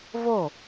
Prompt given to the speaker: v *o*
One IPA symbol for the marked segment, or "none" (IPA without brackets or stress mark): o